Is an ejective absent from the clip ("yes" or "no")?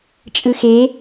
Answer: no